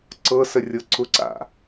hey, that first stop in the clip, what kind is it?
click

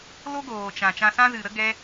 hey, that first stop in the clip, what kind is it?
plain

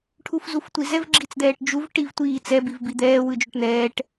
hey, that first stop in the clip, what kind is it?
aspirated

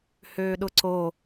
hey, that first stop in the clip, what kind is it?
implosive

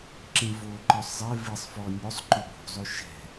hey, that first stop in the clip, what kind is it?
click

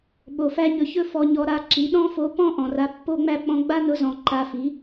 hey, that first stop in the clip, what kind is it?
implosive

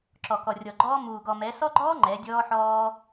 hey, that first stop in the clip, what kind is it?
click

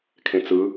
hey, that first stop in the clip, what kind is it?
aspirated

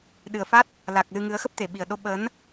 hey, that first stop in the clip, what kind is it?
implosive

